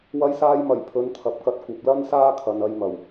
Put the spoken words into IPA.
wɐ˧jsaː˧jmɐ˨˩j pʰɵ˨˧nt̪ʰɐ˨p̚kɐ˧t̚ kʷɐ˨p̚lɐ˥n saː˥kʰɐ˨nɐ˧j mɐ˨˩w

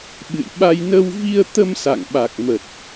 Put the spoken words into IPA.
ɓɨ̰˧˨jɓa˧j nə˧wvi˧ə̯ t̪ə˧msa̰˧˨ŋ ɓa˨˩k̚mə˨˩t̚

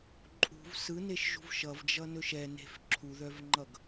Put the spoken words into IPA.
ǃʼṳv sɯneʃʒṳv ʃʌvd͡ʒʌnɵʃ ɛne̤f ǁʰuðœvŋ͡ǃʌɡ

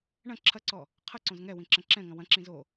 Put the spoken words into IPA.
ɳɐ̃ ǁʰɐǀɔ | qʰɐǀõz ŋɛwĩ ǁɐ̃ǁɛ̃ŋɐ̃ wɐ̃ǁĩ zo

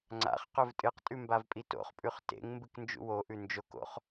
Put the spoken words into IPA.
ŋ͡ǀa̰χ qɵvtʼɨqtʼʉ mbavpʼito̰χpʼʉχ tḛŋ mbɨknd͡ʒṵwoʔʉ nd͡ʒoko̰χ

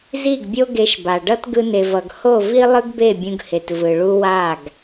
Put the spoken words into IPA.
zi˦˨ɡbʲo˦ ɡe˧ʃba˨ɖʌ˦t ɡɯ˧ne˨vʌ˨ɡ ho˦˨vi˦ lˠɯ˦ɡbe˦˨bʲũ˧ɡhe˨t vɯ˨ɭu˦ wa˦˨ɡ

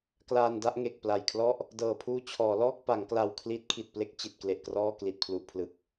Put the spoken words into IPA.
klaː˧nda˦˥ʔŋe˨˩k̚ pla˨˩jkʰlɔ˥˩ʔ | dɤː˨˩pʰuː˧t͡ɕʰɔː˩˦ lɔː˥˩k̚pa˩˦ŋkla˨˩w kʰli˦˥t̚kʰi˨˩t̚ple˥˩k̚ t͡ɕi˨˩t̚kle˨˩ʔkrɔː˥˩ kli˨˩t̚pʰlu˨˩ʔpʰlɯ˨˩k̚

